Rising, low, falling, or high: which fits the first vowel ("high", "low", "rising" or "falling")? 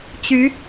rising